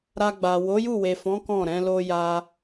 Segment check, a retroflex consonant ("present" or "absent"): absent